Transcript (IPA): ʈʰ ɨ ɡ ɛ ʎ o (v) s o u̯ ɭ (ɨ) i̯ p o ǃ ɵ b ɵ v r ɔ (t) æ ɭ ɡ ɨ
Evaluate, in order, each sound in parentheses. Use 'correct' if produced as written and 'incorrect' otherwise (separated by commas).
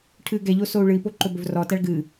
incorrect, correct, correct